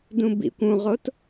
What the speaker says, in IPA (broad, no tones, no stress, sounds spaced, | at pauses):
d ũ b ḭ kʷ ũ ʁ o t